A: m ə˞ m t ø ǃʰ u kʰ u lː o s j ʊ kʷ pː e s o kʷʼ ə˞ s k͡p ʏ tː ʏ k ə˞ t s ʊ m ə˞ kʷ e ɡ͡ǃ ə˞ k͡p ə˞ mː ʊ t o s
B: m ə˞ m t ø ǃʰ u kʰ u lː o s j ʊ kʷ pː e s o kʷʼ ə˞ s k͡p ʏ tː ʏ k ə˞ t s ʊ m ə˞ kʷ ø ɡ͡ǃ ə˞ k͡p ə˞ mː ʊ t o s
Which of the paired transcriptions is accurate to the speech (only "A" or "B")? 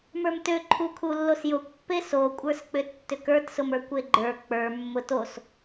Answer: A